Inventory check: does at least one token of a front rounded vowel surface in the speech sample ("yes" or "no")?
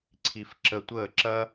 no